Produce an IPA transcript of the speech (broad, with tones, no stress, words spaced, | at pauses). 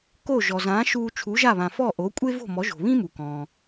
ko˥˩ ʒɔ˩zãː˩˥ʃuː˧ t͡ʃʰu˩˥ʒa˥˩βã˩fɔ˥˩ ʔo˩˥kʷʼe˥vo̤˥˩ mɔ˩˥ʒo̤˩βĩ˥ mu˩kɔ̃ː˩